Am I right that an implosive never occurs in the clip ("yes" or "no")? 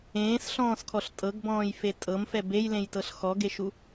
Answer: yes